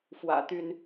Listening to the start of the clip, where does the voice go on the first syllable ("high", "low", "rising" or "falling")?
low